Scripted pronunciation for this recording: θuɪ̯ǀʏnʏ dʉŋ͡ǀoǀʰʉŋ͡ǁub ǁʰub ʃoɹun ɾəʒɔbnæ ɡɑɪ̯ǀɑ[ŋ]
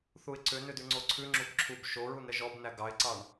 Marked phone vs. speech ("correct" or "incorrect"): incorrect